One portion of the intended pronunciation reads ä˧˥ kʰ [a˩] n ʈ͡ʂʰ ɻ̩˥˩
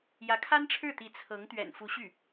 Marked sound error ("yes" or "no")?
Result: yes